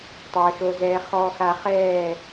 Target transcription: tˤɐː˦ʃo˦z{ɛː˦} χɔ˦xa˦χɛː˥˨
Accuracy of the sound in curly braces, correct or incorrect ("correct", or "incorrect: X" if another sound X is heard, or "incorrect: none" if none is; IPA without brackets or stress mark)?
correct